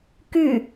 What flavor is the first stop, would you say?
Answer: plain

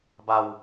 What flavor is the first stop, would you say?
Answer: plain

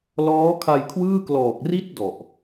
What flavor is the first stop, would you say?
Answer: aspirated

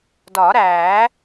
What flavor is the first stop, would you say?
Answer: plain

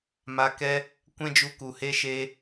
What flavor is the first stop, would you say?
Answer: plain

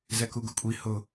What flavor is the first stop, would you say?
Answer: plain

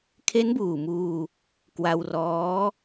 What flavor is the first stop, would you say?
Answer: aspirated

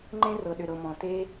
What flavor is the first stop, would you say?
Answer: click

